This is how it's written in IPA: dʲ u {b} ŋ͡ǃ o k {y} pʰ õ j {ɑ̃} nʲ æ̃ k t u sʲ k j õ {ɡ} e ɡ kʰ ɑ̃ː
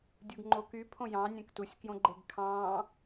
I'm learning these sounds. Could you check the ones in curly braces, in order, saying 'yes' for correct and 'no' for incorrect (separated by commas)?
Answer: no, yes, yes, no